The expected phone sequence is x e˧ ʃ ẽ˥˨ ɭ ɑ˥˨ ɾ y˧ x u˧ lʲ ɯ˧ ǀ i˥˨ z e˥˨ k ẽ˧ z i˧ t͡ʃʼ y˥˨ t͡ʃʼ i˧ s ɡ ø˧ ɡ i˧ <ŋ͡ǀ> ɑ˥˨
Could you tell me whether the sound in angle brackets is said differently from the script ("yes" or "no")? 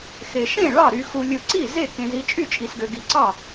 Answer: yes